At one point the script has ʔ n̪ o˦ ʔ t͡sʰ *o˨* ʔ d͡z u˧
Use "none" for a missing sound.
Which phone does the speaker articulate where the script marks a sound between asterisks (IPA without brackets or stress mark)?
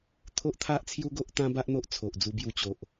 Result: o˨